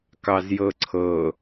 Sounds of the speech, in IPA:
kɑzjɤǀʰɤ

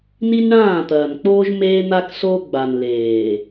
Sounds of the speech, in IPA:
ni˦nɳãː˦˨t̪ɐː˨nk͡poː˦ʒ meː˦n̪a˦ksoː˦ ɡ͡ba˨nleː˨

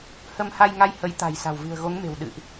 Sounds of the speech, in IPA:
hə˧mha˧jŋa˧j hə˨˦jt̪a̤˨˩j sa̤˨˩wvɨ̤˨˩ə̯ɣo˨˦ŋme̤˨˩w ɗɨ̰˧˨ʔ

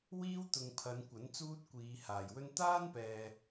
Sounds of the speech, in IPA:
wiː˥wt̪ʊ˨ŋ pʰɐ˨˧nkʷɐ˨˥n t͡suː˥t̚kʷiː˨˧haː˨˩jwɵ˥n t̪aː˥npɛː˨

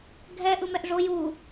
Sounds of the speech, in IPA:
ɡʱɛ ʔɯmɛʔʐo ju

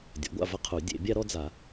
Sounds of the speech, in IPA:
dʲɔ̰˩˥ɡʷa̰˥˨vɐ˥qʰu˨˩˦ dʲḛ˨˩˦ bʲa˥ɾɔ˥d͡za˨˩˦

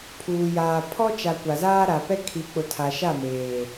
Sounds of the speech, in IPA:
pʰuː˨jaː˨ pʰɔ˦t͡ʃa˨ kʷa˨zaː˦ɾa˨pɛ˦ kʰi˨˦k͡pʊ˨tʰa˨ʃa˦˨ meː˨

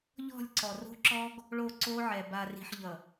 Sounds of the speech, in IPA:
ʎɔ̤˦˨lʲǀɔ˨ro̤˦ǁɔ˦ɡ | ɭo˦˨ǀo˦ʕɛ˨ ba˨ri̤˨ħʎʌ˨

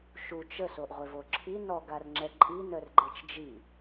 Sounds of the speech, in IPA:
ʃut͡ʃ əsoʔʁʷev oǁʰi nɔɡarŋ͡ǁɛ ǃʼinœr ɡ͡ǃet͡ʃd͡ʒi

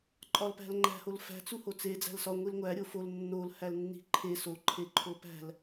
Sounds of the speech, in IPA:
ǃʼɒlpæ̤lŋ͡ǃæ̤ holfæ̤ t͡suhot͡se d͡zæ̤lsɒ ŋʷilŋʷæ ɾʲofol nːol hælnːi̤ǃʰe so ǃʰeǃʰopæ̤l

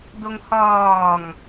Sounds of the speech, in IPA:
doŋhɒːŋ

